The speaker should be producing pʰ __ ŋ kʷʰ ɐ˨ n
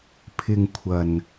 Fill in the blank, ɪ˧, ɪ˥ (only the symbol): ɪ˧